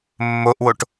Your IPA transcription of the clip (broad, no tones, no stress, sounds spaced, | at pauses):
mː o ʔ w o ʈ